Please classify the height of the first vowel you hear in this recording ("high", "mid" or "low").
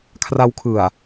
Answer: low